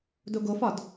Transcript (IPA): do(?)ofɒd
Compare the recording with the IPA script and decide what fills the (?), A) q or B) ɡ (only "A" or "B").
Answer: B